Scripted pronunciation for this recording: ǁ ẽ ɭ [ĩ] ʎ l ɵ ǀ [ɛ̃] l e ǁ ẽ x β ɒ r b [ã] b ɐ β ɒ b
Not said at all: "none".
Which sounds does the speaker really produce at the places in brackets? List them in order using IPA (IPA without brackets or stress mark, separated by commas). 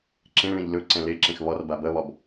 ẽ, ɛ̃, a